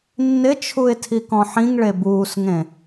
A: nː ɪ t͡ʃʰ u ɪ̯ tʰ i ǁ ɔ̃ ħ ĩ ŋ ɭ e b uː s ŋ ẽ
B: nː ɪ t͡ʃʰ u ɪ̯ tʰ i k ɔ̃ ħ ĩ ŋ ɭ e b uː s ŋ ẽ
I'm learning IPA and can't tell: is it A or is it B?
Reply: B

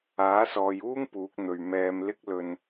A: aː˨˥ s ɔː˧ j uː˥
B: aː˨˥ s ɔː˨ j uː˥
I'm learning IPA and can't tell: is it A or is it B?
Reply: B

